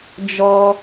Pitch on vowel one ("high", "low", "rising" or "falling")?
high